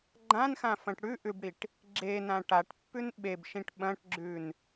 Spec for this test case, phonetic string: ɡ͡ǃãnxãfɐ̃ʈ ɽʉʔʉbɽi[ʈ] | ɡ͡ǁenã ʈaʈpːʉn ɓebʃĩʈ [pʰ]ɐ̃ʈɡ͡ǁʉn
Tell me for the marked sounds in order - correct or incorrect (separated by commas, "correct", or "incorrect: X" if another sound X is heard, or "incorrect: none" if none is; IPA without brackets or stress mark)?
correct, incorrect: ɓ